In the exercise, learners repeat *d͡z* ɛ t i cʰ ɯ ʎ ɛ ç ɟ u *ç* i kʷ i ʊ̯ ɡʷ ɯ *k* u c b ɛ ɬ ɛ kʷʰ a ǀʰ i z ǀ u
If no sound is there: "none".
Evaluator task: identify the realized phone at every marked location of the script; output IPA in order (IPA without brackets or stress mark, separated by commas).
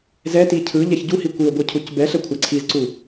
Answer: z, h, cʰ